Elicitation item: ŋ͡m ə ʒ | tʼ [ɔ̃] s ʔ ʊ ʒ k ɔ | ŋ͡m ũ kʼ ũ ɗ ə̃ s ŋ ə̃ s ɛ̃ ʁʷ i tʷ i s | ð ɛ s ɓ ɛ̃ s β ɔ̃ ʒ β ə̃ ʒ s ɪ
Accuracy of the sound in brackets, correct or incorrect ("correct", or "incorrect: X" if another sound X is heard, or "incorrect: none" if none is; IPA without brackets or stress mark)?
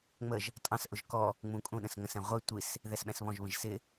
incorrect: ɑ̃